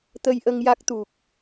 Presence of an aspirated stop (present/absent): absent